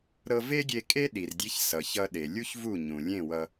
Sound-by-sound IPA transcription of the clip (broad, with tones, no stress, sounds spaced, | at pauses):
ɾ ɤ˧ v e˥ ɡʲ e˧ kʼ e˥ ɗ i˩ r dʲ e˧ ç s ʌ˩ ç ʌ˧ ɗ e˩ lʲ u˥ ç v u˥˩ ɲ ũ˩ lʲ ẽ˥˩ w ʌ˧